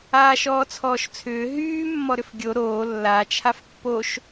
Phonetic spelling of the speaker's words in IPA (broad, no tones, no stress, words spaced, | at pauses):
aːʃɔːt͡sʰɔːʃt͡sʰʏː ɦyː mːɔɾʏfɡʲo ɾoː lːa t͡ʃʰafpːoʃ